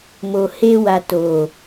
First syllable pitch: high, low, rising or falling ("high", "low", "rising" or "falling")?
low